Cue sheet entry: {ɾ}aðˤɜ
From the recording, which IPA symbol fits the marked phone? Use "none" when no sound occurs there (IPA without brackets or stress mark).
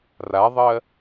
r